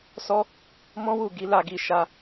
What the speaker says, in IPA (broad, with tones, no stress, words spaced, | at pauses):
sɔ˦ | mɔ̃˦wu˦˨ ɡi˨˦la˦˨ɡi˧ ʃa˧